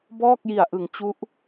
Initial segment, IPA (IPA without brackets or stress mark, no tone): b